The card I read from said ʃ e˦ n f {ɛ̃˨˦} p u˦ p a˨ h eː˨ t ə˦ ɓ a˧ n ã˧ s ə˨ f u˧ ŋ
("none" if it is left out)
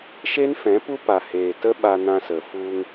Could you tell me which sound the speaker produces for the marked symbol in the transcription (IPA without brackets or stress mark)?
ɛ̃˨˦